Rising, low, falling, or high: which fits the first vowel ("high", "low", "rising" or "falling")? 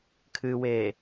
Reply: low